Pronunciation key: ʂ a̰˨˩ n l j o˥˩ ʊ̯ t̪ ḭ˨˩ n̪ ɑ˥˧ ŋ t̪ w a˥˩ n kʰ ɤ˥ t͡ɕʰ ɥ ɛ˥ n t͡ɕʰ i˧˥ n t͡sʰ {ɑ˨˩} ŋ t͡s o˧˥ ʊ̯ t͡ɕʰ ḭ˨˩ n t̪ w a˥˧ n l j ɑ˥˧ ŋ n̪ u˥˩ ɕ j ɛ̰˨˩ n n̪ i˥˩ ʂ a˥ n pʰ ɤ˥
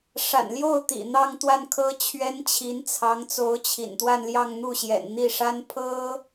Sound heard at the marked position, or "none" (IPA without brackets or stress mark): ɑ˧˥